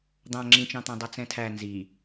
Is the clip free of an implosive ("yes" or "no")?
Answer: yes